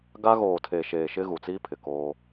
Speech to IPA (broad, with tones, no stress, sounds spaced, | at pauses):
ɡ a˦ ɣ oː˨ tʰ eː˨ ʃ eː˨ ʃ ɪ˦ ɣ u˨ t͡s iː˦ pʰ ɪ˨ k oː˦